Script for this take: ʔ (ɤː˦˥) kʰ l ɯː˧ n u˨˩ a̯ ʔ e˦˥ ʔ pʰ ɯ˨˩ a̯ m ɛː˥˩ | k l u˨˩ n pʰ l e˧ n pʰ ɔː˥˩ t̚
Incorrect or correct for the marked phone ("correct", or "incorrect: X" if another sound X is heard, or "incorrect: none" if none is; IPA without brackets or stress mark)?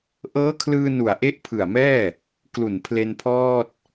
correct